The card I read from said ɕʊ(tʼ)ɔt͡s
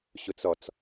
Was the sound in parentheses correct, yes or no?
no